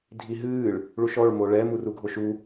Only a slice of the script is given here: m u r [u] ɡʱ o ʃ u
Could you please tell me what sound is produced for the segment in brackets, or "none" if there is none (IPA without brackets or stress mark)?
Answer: u